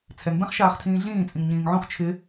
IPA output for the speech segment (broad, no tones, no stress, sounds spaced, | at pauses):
t͡sʰ ɛ ŋ b ɛ̃ χ ʃ aː χ tʰ ĩː ɮ ĩː t͡sʼ ĩ ŋ ɲ ĩː ŋ ʕ õ χ t͡ʃʰ ɪ